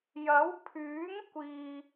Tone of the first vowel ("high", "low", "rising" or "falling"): rising